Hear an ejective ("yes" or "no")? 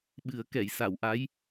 no